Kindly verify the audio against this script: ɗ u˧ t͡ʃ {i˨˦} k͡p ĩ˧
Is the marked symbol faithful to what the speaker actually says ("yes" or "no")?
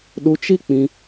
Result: no